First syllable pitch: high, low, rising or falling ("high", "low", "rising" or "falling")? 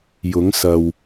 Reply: rising